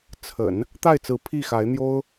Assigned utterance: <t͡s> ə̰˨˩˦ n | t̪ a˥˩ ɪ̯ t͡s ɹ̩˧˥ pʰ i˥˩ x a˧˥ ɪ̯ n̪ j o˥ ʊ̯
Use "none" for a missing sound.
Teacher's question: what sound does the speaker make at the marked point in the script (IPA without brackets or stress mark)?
t͡sʰ